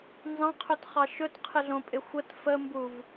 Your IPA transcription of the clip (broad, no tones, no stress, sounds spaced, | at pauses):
n z ɑ̃ qʰ ɵ t χ ɑ ʃ ɵ t qʰ ɪ ɮ õ pʼ ɪ xʷ ə t f ə m b u v